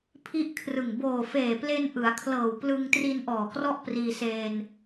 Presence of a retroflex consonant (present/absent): absent